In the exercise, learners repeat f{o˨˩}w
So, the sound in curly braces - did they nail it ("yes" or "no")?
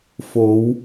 no